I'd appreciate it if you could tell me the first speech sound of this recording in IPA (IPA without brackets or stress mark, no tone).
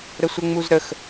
ɾ